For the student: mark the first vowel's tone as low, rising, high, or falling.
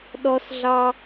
high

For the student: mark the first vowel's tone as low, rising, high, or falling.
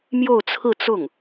falling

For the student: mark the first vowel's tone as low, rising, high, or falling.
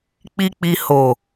low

